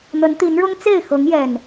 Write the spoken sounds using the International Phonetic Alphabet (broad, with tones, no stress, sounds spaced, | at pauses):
n̪ ə˨˦ n t̪ i˨˦ n ɻ ʊ˦ ŋ t͡s e˥˨ ɪ̯ x ɤ˨˦ ŋ j ɛ˨˩ n